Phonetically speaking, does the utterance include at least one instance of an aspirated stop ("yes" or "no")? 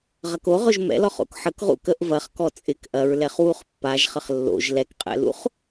no